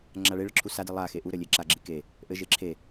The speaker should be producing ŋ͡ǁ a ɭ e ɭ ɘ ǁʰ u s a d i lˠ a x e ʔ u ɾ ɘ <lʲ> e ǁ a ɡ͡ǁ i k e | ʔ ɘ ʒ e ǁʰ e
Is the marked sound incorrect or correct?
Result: correct